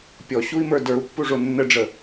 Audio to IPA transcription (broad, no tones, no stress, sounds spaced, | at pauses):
pʲ ɔ ɕ u i̯ m ə˞ d ə˞ u̯ pː u ʐ o nː ə ɖ͡ʐ ə